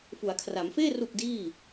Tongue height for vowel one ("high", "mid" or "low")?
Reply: high